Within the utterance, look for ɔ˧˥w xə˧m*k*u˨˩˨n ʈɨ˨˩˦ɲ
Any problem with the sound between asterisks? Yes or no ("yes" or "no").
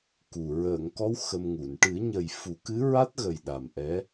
yes